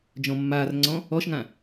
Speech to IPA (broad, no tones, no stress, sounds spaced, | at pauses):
d͡ʒ ɔ̃ mː aː r ŋ͡ǀ ɔ̃ | ɔ ʃ ŋ ã